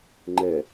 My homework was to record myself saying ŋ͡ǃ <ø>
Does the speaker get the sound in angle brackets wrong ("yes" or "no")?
yes